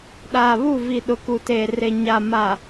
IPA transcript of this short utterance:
ɗaː˨βu˦˨vi˨ ɗʊ˨ku˨teː˨re˨ ɲa˨ ma˨

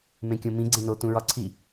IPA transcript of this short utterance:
mẽkʲõmĩ ɡ͡ǀẽno tũɹɒǀʰi

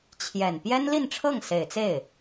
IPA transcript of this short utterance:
t͡ɕʰjɛ˨˩n pjɛ˥nli˥˧nʈ͡ʂʰɤ˥˩ŋ se˨˩ɪ̯t͡se˥˩ɪ̯

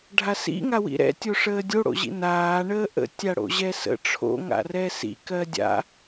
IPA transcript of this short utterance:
ɖʱasḭ ŋawḭɾɛ̰ tʲoʂəːdʲo ɽo̰ʑḭnaː ɳəːʔə̰ tʲaɽo̰ʑɛsə̰ ʈ͡ʂʰo̰ ŋa̰rɛsḭ kɜdʲa̰

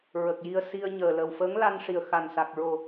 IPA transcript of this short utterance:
ɹə˨˩k̚ji˧ə̯si˧ə̯ɲəː˨˩ lə˨˩wfəː˧˥ŋ la˧nʂi˨˩ə̯ xa˨˩nsa˨˩k̚ɹo˨˩

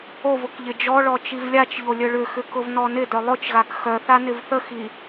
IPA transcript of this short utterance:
ovʊk ʎɪd͡ʒɔɭɔ t͡ʃivlʲat͡ʃʎo lʲœɭʏxʏ kʊvnɔnɪdœ lˠʊt͡ʃɣak xœθa nɪvθəxi

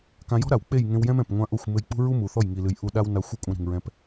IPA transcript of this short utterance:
kã˧jɔ̤˦ɾa˨w k͡pe˦˨jŋẽ˧wjɛ̃˦m ɛ̃˨pŋʷã˧ ʔo˦˨xʷmɘ˧j k͡pṳ˦ɹu˦ mu˨θɔ˦˨jŋi˨lɨ˨j ʔu˧ ɗa˦wna˧xʷɛ˦ kʷʼã˧ ɾi̤˨ŋɹɛ̃˧p

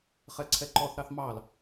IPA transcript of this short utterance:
χɛǀʰɛǃɔθ ɾɑθmɑl

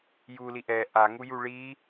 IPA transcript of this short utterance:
juli ʔɛ ʔaŋuju ɭi

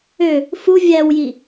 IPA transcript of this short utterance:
ø | fu vʲæwji

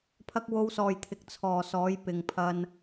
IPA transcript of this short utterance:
pʰɐ˥k̚ wo˧wsɔː˨jt̪ʰɪ˨k̚ t͡sʰɔː˨sɔː˨˥jpɪ˨ŋ pʰɐ˧n

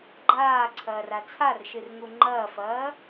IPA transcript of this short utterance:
ɡ͡ǃaːǀʰɐːr at͡sʰarʃɨr ŋuŋ͡ǃɐːfɐː

